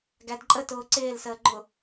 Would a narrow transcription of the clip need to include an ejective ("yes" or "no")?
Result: yes